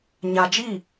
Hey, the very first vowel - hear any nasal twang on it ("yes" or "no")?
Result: no